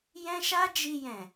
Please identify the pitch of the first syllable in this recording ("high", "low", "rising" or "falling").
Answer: high